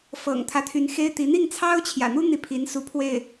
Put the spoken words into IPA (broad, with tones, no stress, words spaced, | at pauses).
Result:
fɤ̰˨˩ŋt̪ʰä˦t̪ʰy˧˥n xe˥ɪ̯t̪i˧˥ n̪i˥˩ŋt͡sʰɑ˥ʊ̯t͡ɕʰjä̰˨˩n̪u˥ n̪i˥˩pʰi˧˥nsu˧˥ pʰwe˥˩ɪ̯